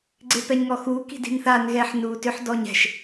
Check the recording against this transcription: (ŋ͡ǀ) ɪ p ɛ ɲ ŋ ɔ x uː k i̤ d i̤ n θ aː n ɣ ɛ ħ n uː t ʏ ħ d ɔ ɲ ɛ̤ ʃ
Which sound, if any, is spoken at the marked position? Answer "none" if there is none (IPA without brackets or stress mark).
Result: ɡ͡ǀ